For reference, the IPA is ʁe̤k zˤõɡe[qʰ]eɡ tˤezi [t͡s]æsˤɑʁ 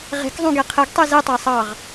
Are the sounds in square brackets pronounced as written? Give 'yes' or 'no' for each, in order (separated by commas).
yes, no